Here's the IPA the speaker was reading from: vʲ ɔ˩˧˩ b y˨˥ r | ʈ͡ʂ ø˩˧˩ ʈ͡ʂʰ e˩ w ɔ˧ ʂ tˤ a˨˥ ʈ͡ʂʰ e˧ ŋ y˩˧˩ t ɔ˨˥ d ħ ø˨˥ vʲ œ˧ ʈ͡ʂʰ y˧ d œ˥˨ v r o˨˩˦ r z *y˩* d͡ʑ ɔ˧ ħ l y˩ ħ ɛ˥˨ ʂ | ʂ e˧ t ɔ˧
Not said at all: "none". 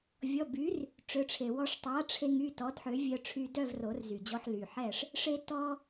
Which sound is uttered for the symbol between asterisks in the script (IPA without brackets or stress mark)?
y˩